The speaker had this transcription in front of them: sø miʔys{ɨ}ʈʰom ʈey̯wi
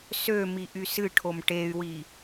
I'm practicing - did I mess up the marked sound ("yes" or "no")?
no